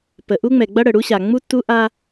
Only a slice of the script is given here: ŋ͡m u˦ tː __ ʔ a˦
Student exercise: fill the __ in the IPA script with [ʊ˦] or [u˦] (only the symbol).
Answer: u˦